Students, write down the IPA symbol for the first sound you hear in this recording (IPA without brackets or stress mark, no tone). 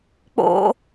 k͡p